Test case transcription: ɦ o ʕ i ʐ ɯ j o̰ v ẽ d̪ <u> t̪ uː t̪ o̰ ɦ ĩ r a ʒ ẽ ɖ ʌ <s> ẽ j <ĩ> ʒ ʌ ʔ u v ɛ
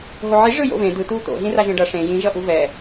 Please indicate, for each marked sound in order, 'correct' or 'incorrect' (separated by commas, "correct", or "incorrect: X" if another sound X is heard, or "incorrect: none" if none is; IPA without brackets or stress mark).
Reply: incorrect: ɯ, incorrect: ʂ, correct